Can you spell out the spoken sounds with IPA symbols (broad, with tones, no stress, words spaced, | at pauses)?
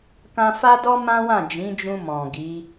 kã˧fa˦dɔ˦ mã˦wã˦˨ d͡ʒĩ˨˦d͡ʒũ˧mɔ̃˨ ɡi˨˦